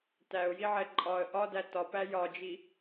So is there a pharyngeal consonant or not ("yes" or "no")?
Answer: yes